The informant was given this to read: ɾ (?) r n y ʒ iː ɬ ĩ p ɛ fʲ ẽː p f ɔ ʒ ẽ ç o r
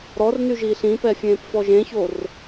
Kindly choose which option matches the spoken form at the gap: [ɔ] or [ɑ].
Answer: ɔ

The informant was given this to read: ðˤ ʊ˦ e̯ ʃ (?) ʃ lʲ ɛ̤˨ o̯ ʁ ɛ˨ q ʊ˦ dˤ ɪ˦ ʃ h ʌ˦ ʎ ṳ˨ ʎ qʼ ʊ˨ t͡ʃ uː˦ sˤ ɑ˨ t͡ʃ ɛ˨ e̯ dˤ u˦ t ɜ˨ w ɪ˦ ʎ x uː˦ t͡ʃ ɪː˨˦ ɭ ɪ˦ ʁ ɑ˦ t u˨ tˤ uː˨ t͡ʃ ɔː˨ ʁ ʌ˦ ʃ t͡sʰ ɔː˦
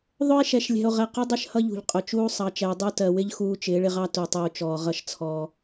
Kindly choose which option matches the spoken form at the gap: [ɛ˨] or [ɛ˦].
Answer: ɛ˨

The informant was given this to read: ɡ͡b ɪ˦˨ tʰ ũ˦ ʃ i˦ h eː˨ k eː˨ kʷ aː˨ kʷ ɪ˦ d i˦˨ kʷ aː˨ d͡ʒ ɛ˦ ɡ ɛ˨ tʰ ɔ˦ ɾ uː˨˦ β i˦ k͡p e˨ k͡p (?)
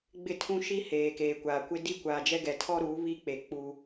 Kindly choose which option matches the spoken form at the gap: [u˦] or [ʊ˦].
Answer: u˦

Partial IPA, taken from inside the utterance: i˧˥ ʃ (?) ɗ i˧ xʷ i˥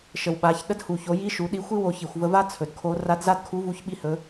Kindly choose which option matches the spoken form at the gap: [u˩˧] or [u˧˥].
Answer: u˩˧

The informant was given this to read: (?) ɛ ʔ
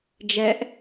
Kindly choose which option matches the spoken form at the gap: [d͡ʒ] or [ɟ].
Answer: d͡ʒ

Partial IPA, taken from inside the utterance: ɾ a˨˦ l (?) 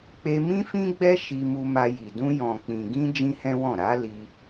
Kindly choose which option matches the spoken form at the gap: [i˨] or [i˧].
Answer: i˧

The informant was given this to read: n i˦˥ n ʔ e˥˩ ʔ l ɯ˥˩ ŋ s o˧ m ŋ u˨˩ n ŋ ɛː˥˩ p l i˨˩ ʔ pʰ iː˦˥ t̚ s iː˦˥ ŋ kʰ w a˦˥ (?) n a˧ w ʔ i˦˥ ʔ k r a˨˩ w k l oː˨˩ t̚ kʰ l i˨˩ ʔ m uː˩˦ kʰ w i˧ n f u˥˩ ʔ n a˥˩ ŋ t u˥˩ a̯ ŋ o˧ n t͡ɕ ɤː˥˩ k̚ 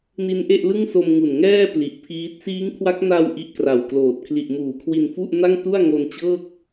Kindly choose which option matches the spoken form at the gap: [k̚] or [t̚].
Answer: k̚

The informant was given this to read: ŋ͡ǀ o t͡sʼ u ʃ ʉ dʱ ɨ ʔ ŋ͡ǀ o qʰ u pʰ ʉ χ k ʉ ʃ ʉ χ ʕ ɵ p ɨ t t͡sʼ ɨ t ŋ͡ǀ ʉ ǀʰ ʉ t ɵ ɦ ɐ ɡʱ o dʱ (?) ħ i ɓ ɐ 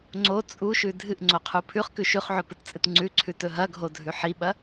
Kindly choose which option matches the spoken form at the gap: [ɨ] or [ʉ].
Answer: ʉ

